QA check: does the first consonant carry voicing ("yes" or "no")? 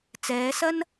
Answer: no